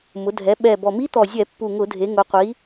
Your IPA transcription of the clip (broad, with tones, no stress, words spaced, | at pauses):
mʊ˩˧dʱɛ˩˧ ɓɛ˨˩bɔ˨˩mi˦˥ t̪ɔ˨˩zʲɛ˧˩˧ pːu˨˩ŋʊ˧˩˧dʱe˩˧ ŋʊ˩˧qʷi˩˧